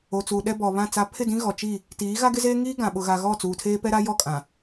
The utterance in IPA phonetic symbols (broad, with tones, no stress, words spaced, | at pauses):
o˨t͡suː˨ ɗɛ˦bɔ˨βã˦˨t͡sa˦ pʰɪ˦˨dĩ˦ ɣɔ˨t͡ʃi˦˨ | tiː˨˦ ɣa˦ɡɪ˦zeː˦ ŋiː˦ɡã˨ɓʊ˨ɣa˨ ɣɔ˦˨t͡suː˨tʰeː˦ pɛ˦ɾa˦ jɔ˦˨kʼã˨